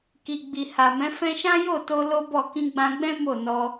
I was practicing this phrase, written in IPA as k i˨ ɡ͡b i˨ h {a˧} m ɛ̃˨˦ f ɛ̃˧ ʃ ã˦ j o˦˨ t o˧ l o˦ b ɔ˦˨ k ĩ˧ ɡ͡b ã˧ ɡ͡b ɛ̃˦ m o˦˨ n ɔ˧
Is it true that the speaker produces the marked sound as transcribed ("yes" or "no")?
no